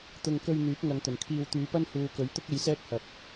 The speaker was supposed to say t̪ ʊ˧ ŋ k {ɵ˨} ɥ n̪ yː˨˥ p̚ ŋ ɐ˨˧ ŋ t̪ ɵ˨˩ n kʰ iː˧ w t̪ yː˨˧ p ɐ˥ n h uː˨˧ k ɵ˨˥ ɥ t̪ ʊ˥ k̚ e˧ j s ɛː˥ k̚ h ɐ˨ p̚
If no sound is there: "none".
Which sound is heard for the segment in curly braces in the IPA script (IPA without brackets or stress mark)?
ɵ˧